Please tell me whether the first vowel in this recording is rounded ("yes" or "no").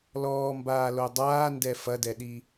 yes